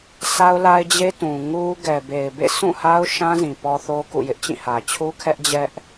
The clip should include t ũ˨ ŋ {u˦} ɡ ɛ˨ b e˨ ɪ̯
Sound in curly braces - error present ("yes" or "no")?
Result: no